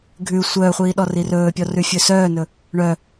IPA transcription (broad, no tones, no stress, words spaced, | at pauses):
ɡʱʉ sʷœːχʷiː ɗɔrirɵːpʲɔ rʉfʲɵːsœːnɵ | ɳœ